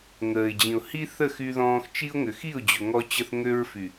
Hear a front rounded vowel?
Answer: yes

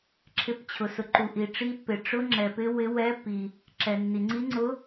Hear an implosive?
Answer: no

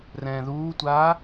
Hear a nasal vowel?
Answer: yes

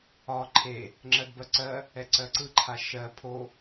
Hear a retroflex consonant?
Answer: no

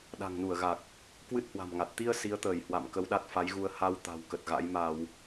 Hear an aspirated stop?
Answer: no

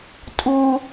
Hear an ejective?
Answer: yes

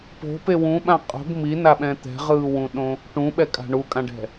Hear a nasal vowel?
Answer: yes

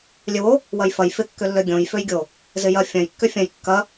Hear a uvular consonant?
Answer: no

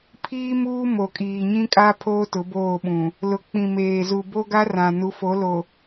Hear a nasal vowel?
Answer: yes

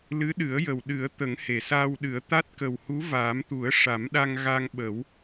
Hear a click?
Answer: no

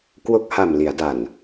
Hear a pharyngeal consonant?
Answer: no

